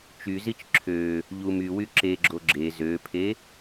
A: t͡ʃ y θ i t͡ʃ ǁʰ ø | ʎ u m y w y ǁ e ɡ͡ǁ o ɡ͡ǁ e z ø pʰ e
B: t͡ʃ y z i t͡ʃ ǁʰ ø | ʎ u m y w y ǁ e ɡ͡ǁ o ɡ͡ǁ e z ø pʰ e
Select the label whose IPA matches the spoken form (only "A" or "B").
B